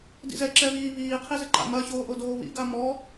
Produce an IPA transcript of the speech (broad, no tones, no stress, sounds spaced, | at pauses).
d ḭ z ɛ ǁ ɛ β iː β iː qʰ i z ɘ ǃ a̰ m ɐ ç oː ʔ o d oː β ḭ ɡ a m ɔ